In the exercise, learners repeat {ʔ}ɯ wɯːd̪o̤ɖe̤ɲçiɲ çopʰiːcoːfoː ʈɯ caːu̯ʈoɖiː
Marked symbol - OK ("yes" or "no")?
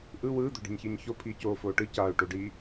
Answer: yes